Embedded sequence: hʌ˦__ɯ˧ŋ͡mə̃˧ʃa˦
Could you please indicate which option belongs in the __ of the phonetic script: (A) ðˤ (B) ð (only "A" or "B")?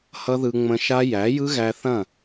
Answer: B